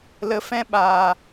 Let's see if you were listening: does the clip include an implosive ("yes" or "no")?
yes